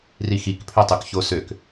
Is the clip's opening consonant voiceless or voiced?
voiced